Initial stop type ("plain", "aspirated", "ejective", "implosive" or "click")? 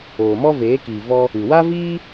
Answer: plain